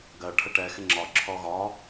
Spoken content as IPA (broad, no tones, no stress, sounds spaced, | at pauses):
ɡ ɜ ʈʰ ə ʈ ɛ x ɪ ŋ͡ǁ ɒ ǁʰ ɔ ɣ ɒ